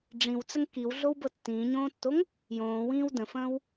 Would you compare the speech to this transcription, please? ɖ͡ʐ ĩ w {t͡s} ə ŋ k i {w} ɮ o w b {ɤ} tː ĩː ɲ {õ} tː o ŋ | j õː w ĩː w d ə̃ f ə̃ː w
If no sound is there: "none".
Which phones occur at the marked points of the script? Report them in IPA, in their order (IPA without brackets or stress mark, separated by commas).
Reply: t͡s, w, ɤ, õː